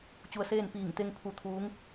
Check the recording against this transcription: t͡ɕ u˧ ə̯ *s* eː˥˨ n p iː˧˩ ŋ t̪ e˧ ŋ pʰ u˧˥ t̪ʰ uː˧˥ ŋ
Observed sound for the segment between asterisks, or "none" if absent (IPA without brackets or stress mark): s